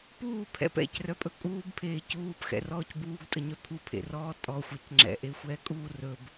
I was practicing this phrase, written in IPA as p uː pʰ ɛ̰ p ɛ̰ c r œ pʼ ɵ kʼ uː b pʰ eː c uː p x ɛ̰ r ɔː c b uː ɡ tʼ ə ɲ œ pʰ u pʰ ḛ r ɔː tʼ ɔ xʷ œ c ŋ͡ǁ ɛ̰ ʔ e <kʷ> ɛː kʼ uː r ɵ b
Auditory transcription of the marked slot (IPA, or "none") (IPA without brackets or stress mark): xʷ